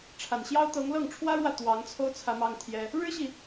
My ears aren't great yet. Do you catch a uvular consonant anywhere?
no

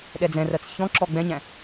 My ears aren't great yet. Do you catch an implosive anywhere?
yes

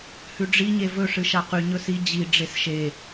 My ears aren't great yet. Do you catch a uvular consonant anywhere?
yes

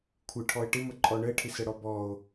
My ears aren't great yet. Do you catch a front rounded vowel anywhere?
no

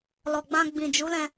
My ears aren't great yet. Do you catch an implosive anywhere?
no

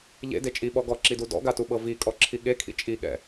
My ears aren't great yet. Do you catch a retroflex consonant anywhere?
no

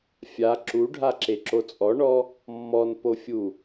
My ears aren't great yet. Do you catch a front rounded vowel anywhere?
no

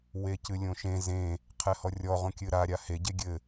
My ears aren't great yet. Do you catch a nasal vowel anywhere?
yes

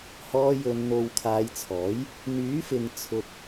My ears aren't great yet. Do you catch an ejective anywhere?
no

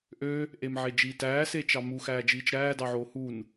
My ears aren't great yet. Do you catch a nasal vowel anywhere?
no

